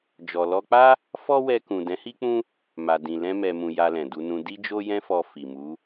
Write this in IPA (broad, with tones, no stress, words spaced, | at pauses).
d͡ʒɔ˨lɔ˧k͡pa˦ | fɔ˦wɛ˧kũ˨ dɛ̃˨˦hi˦k͡pũ˦ | ma˨dĩ˨lɛ̃˧ mɛ˨mũ˨ ja˧lɛ̃˨du˧nũ˧ di˦d͡ʒo˦jɛ̃˦fɔ˧ fi˨mu˨˦